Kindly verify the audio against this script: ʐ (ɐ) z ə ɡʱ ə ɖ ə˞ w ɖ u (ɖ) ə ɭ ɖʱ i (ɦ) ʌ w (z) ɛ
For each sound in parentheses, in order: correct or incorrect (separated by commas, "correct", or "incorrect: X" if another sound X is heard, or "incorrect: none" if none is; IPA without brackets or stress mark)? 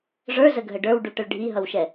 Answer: incorrect: ə˞, incorrect: ʈ, correct, incorrect: ʃ